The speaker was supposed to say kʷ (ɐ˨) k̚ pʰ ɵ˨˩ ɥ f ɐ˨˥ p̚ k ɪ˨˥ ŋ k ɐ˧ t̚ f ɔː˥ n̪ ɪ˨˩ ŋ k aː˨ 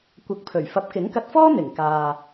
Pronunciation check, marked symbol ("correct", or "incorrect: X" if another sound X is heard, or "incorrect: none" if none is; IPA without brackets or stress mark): incorrect: ɐ˨˥